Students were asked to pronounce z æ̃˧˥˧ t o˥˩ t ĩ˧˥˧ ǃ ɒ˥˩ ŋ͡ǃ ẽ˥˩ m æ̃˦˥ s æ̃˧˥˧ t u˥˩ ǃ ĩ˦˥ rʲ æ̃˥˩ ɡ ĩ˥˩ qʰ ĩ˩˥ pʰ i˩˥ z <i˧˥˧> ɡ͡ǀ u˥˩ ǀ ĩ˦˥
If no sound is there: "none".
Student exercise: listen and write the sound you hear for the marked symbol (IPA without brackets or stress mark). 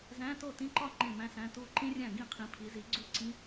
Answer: i˩˥